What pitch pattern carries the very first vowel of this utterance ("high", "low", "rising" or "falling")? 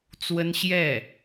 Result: high